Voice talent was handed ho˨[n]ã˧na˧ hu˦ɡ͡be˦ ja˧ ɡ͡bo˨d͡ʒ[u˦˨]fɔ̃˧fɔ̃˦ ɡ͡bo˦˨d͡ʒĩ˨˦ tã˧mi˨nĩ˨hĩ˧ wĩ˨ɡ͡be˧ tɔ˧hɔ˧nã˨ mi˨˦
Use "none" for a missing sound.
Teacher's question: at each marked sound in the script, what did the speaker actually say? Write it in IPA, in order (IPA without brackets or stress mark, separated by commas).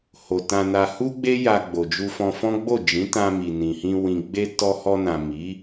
t, u˧